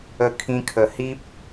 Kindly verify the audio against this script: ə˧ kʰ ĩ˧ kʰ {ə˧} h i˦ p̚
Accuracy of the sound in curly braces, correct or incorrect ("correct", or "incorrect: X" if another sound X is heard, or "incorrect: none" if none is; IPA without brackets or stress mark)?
incorrect: ə˨˩